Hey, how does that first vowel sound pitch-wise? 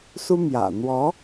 high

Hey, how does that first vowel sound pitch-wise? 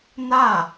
falling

